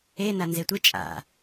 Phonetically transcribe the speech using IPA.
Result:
ena nzetʷɨ t͡ʃʼa̰

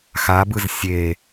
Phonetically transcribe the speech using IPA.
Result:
xabɯz sʲe

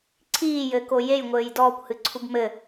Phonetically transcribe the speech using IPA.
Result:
ǀʰiːjɘːko jejŋʷɘːj dɔːkʷhɨ ǀʰubmɘ

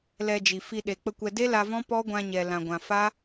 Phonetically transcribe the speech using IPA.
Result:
lɛ˧d͡ʒi˨fi˧ ɗe˨ k͡pə˧kʷɛ˧ de˦la˧vɔ̃˦ pɔ˦ɡʷã˧ɲɛ˨ lã˨ɡʷã˨ fa˦

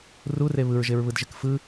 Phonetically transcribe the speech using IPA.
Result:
rure βɯɹʒeɹβɯdʒɪk fɯ

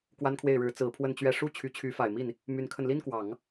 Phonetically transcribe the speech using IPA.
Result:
kwa˥nkʰwe˥˩ɪ̯ɻɻ̩˧˥ t͡sɹ̩˧˥pʰwə˥˧nt͡ɕɥɛ˥˧ ʂu˥˩ t͡ɕʰy˧˥t͡ɕʰy˧˥fa˨˩ɪ̯mi˥˩n | my˧˥nkʰə˧n li˥nkwɑ˨˩˦ŋ

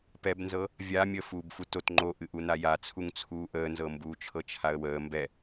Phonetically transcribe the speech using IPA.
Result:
pɛbnzɤ | vʲa mʲəːfuːbfutot ŋ͡ǃoʔɨ ʔunajat͡sʰuŋ t͡sʰuːʔəːnzɤ mbuːt͡ʃʰɤt͡ʃʰaə̯wəː mbɛ

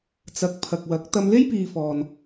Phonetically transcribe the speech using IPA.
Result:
t͡sɐ˨k̚pʰɐ˨k̚wɐ˨˥k̚ t̪ɐ˧mle˥jpiː˨ fɔː˨n

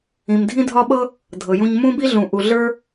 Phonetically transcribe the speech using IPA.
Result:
ĩ˨mdʱĩ˥dʱɒ˥ɓɤ˥ | dʱɤ˨jũ˦ɲ mũ˥bi˥ɮũ˨ ʔu˨ɮə˞˥

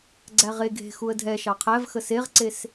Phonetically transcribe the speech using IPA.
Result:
ɡ͡ǀæʁe ɡʱe̤ xuə̯dʱɛ ʃɑqʰæv xəseʁǀes

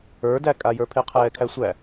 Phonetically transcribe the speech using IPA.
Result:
ə˞dækʼajə˞ pʰeqʰɛːkʰæsʷæ

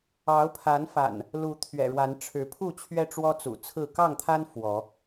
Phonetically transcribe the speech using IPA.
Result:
ɑ˨˦ʊ̯pʰa˨˦nfa̰˨˩n | lu˨˦t̪ʰɥɛ̰˨˩ɻwa˨˦n ʈ͡ʂʰɻ̩˨˦pʰu˥˨t͡ɕʰɥɛ˦ ʈ͡ʂwɔ˦t͡sṵ˨˩t͡sʰɹ̩˥˨ kɑ˥˨ŋt̪ʰa˦n fwɔ˨˦

